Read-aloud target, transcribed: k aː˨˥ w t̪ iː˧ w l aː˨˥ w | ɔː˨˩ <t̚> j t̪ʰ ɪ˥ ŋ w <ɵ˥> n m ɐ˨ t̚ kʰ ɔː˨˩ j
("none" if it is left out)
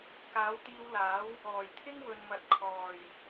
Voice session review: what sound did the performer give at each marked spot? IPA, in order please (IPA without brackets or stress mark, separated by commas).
none, ɵ˨